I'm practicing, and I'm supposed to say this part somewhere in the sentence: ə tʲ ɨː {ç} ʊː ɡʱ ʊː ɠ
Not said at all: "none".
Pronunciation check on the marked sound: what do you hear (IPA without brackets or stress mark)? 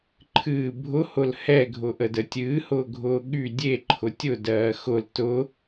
h